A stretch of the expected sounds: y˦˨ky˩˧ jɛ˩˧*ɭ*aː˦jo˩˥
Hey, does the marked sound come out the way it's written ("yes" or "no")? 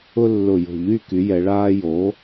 yes